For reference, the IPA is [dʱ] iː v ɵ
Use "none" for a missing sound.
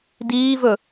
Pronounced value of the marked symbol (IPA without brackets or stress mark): d